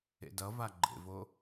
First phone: ḛ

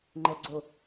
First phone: ŋ͡ǃ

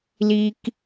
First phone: l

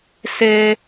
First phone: s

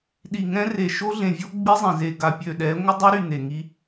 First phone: ɗ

